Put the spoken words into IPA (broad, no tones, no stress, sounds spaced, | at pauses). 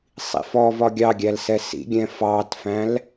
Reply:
sˤ ḭ f ɔ v ɒ ɡʲ ɑ ɡʲ æ l s ɛ s ḭ ɡʲ ɛ̃ f ɑ t f æ̃ l